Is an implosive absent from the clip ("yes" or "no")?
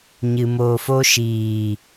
yes